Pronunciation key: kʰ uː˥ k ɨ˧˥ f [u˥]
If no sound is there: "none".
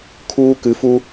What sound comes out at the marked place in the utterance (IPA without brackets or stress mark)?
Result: u˥